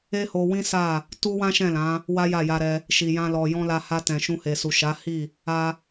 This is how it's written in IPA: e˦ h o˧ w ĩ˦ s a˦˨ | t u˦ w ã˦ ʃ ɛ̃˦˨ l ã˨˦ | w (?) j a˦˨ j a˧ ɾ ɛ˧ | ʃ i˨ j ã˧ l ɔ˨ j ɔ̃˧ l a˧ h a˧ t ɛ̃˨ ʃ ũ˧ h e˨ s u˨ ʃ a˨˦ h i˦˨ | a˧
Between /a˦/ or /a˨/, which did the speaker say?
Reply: a˦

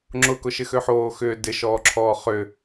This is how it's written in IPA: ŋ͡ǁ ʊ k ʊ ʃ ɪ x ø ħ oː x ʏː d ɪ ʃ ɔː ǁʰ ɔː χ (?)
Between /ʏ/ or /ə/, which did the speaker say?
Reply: ʏ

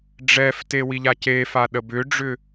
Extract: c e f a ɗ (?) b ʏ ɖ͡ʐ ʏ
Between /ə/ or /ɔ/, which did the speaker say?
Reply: ə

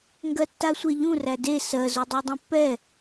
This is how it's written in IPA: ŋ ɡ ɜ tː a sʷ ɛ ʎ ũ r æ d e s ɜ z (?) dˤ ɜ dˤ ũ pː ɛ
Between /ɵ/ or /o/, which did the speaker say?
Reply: o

